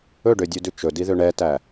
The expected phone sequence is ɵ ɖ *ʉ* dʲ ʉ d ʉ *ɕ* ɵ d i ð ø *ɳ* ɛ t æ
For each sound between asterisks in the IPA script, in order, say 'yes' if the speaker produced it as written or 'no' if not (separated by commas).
no, no, yes